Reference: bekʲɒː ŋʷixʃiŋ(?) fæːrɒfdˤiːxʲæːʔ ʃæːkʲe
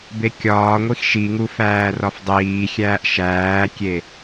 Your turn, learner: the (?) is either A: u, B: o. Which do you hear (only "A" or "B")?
A